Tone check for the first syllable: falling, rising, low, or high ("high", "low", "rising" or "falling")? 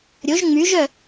rising